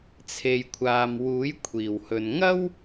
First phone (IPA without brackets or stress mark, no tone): t͡sʰ